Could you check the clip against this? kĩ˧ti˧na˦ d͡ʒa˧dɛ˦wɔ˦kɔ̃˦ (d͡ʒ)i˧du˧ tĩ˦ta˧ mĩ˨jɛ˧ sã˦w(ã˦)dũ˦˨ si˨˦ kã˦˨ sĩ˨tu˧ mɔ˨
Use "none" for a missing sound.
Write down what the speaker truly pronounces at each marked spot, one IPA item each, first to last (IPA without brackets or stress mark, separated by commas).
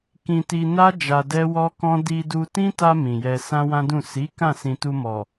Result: d, ã˦